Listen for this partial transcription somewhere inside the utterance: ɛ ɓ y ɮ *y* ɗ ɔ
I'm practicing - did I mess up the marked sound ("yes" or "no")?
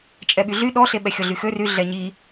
no